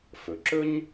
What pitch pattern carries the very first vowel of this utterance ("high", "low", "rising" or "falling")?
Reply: low